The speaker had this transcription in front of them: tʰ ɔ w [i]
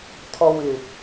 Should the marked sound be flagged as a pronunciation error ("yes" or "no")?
yes